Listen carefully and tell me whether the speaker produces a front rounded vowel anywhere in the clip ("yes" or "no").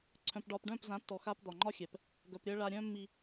yes